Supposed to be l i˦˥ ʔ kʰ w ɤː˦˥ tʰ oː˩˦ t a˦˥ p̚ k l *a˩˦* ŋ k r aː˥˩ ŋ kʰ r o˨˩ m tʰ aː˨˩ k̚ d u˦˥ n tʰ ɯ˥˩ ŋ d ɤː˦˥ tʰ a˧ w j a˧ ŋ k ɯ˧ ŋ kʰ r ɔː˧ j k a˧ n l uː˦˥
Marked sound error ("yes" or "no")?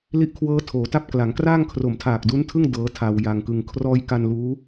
no